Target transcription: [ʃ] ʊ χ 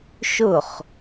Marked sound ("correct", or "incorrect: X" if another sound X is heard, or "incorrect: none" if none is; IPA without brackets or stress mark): correct